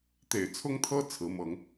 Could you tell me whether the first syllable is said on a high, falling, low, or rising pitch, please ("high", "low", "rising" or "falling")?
low